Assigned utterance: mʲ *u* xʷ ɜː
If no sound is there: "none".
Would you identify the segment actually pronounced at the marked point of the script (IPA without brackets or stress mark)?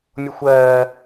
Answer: o